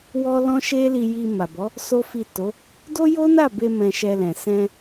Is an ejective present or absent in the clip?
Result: absent